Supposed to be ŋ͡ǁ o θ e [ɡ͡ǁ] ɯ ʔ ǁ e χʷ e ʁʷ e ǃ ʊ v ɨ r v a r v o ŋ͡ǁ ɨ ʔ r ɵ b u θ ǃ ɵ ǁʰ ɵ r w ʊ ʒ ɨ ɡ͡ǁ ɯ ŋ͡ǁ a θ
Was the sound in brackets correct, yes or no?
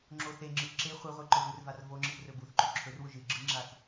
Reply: no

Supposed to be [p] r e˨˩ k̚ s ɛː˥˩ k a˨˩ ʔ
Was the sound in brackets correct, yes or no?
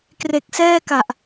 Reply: no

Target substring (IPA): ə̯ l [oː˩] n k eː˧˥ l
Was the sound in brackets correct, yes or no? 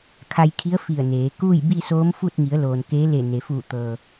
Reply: yes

